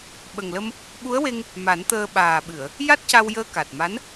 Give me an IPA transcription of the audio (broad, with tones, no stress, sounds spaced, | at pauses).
ɓ ə˨˩ ŋ l ə˧ m | ɓ u˧˥ ə̯ w e˧ ŋ | m a˨˩˦ n t̪ əː˧ ɓ aː˨˩ ɓ ɨ˨˩˨ ə̯ | j a˦˥ t̚ c a˧ w j əː˧ k a˨˩ t̚ m a˧˥ n